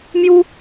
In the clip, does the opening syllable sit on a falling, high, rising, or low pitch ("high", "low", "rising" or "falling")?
high